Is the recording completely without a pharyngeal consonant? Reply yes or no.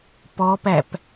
yes